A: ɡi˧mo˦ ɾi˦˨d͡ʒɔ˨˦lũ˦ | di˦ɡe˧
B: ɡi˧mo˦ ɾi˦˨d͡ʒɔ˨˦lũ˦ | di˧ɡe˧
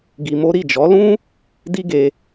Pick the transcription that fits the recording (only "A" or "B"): A